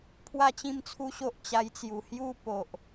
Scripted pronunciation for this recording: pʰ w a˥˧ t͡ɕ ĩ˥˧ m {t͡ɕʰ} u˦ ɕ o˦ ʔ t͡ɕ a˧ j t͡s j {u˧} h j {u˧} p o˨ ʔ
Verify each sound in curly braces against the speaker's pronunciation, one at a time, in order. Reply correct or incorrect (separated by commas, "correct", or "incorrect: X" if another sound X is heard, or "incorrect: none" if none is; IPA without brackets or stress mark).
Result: incorrect: t͡sʰ, incorrect: u˨˩, incorrect: u˦